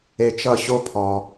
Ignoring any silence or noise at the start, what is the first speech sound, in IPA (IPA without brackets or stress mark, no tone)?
e